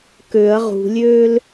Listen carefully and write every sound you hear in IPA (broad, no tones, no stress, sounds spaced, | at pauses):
k ø ɐ̯ ʁ ṳ lʲ øː l